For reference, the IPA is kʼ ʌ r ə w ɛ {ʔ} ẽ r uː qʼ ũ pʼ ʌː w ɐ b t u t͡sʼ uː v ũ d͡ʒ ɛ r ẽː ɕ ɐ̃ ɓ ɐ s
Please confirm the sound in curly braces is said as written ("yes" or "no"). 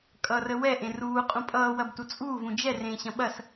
yes